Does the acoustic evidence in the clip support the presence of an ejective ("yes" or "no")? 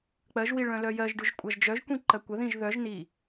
yes